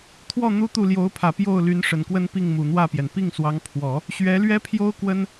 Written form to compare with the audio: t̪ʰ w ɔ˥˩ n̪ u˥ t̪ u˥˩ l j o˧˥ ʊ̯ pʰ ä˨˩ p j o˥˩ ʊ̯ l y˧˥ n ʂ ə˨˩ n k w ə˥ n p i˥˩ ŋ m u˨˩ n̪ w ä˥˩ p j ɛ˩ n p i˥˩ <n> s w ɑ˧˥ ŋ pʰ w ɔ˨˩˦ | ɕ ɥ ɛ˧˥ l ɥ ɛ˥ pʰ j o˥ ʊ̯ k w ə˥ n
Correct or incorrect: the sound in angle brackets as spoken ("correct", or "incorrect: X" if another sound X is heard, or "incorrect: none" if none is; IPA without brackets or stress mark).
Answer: incorrect: ŋ